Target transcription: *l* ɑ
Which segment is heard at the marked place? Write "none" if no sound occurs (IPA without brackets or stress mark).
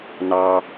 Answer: n